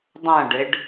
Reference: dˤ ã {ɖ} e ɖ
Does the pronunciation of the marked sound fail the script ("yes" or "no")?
no